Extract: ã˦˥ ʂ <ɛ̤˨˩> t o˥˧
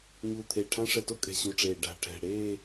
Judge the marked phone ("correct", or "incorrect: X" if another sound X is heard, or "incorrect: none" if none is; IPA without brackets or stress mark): incorrect: ɛ˨˩